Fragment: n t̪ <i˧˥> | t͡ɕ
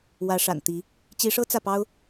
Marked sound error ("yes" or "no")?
no